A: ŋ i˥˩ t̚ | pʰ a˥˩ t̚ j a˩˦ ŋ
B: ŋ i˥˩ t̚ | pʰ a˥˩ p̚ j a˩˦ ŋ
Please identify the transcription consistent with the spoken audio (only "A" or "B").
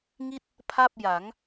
B